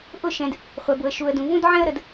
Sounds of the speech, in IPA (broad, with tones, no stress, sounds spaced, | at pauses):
ʔ ʊ˦˨ ʃ ɛ̃˨ d | χʷ ɛ˨ b ʊ˨ ə̯ ʃ u˨ ə̯ d ũ˨ v ũ˦ d ʕ ɛ̃˦ ə̯ ɾ ə˨ d